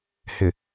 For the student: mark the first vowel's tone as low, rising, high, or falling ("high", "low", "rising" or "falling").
low